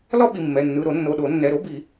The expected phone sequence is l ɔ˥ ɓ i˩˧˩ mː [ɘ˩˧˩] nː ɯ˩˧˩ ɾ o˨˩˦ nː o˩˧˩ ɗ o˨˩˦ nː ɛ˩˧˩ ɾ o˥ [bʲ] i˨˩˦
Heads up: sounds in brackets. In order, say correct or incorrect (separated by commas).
incorrect, incorrect